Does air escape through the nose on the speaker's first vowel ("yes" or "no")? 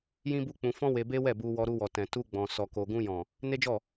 yes